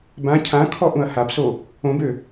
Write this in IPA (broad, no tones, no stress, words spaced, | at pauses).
bã cʰãkʰɔ ʔũɐ̯habso | õbø